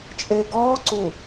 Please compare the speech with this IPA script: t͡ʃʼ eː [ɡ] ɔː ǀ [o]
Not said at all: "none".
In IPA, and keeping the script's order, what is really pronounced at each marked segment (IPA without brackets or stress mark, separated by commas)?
ɡ, u